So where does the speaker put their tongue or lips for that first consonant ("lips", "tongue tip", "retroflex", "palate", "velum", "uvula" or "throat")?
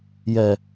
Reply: palate